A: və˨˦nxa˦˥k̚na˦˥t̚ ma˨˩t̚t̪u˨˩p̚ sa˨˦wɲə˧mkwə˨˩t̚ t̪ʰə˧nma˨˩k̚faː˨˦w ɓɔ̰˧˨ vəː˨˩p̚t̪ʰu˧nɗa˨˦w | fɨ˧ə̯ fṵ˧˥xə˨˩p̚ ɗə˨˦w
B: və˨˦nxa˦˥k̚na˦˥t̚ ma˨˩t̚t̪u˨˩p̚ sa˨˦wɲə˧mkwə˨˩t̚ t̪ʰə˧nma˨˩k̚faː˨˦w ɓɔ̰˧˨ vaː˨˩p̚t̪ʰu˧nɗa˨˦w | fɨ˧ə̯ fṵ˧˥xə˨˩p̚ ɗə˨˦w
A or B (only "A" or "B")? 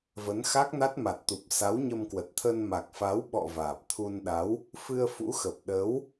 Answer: B